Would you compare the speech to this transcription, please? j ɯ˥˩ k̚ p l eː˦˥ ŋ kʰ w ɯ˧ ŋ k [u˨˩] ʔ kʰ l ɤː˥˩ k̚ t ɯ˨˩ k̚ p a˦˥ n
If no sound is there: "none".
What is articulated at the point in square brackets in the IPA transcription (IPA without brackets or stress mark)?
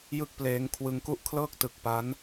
u˥˩